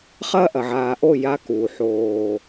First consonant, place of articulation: uvular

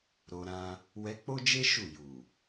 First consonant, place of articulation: alveolar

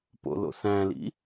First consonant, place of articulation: labial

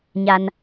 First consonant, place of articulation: palatal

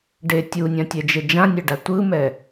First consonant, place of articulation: retroflex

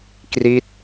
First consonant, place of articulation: velar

